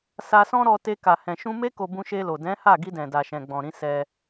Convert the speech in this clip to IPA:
s a˧ s ɔ̃˦ ɾ ɔ˧ t e˧ k a˨ h ɛ̃˨ ʃ ũ˧ m e˦ k o˧ b ũ˧ ʃ e˧ l o˨ d ɛ̃˨˦ h a˦˨ ɡ i˧ d ɛ̃˨ d a˨ ʃ ɛ̃˨ ɡ͡b ɔ̃˨ ɾ ĩ˨˦ s ɛ˦

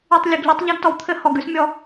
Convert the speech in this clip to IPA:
y˨ tˤ lʲ ɘ˨ ɡ ʎ ʉ˧ tˤ ʎ a˦ ɡ t ɔ˨ w t̪ʰ ɘ˦ h ɔ˨ ɡ ʉ˦ s mʲ ɔ˧

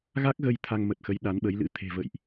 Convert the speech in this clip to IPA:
ɣ a˦˥ k̚ ɣ ə˧ j t̪ʰ a˧ ŋ m ə˨˩ t̚ x ə˨˦ j ɗ a˨˦ n ɓ ə˨˦ j l ɨ̰˧˥ t̪ʰ e̤˨˩ v ə̰˧˨ j ʔ

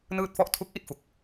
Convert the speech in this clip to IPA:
n ɯː˥˩ t̚ f ɔ˥˩ ʔ tʰ u˦˥ k̚ ʔ i˥˩ t̚ f u˨˩ k̚

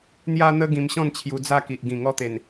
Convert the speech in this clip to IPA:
n̪ j a˧ n̪ ə˧ ɡ ĩ˧ m ɕ ɔ̃˥˧ n t͡ɕʰ j u˧ d͡z a˥˧ k i˨ ʔ ɡ ĩ˨˩ ŋ ɔ˥˧ t̪ e˨˩ n

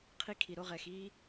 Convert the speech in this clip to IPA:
qʰ i˥ kʰ i˧ ɾ o˥ ʁ ɛ˧ x i˥

